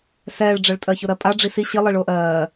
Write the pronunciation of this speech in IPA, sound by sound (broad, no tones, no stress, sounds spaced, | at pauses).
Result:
s ɛː ɭ ɖ͡ʐ ɜ ɭ tʼ ɜ ç ʊ ɾ ɜ pʼ a ɖ͡ʐ i s i ɕ i lˠ i ɭ ʊː ʔ ɜː